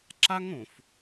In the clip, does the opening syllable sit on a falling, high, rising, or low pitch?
high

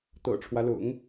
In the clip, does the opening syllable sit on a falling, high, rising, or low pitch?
low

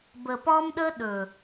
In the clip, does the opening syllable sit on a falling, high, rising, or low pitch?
low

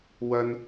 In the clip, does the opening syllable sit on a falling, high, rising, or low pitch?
high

